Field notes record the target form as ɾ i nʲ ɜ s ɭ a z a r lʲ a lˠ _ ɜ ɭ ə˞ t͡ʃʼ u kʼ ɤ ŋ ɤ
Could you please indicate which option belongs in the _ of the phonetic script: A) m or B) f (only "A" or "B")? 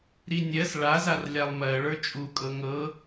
A